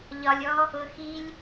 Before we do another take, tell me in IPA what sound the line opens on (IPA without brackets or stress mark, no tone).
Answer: ʎ